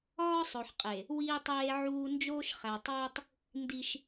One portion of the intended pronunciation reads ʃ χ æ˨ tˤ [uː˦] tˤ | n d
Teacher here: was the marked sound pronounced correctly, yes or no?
yes